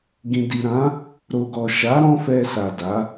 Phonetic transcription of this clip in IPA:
ɡ ĩ˨ d i˨ ɾ ã˨˦ | ɾ o˨ ɡ ɔ˨ ʃ a˨˦ ɾ ɔ̃˦ f ɛ˧ s a˨ d a˨˦

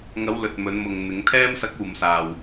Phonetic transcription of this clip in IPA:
ŋ ɐ˨˧ w l ɵ˨ t̚ m ɵ˨˧ n m ʊ˨ ŋ n̪ ɪ˨˧ ŋ t̪ʰ ɛː˧ m s ɐ˨˥ k̚ uː˨ m s aː˨ w

